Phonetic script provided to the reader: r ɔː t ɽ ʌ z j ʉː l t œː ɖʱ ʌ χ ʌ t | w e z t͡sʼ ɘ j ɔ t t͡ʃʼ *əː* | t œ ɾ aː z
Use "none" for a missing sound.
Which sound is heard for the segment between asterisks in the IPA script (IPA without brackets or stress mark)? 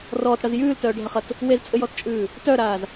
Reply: ʉː